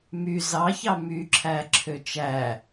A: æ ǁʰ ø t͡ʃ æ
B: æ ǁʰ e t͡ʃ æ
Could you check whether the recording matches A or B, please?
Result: A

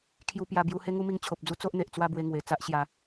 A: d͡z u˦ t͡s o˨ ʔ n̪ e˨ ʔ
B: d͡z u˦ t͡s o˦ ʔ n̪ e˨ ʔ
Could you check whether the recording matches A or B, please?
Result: B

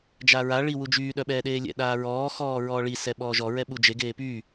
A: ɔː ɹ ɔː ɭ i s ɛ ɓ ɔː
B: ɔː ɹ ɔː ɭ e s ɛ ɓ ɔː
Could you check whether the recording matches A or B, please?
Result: A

